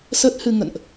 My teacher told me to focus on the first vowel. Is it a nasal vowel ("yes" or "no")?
no